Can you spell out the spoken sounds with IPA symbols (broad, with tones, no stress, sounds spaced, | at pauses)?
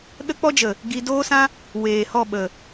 ɗ ə˦ k͡p ɔ˦ d͡ʒ ə˨ | ɡ i˧ d oː˦ s ã˦ | w eː˨ h ɔ˦˨ ɓ ə˨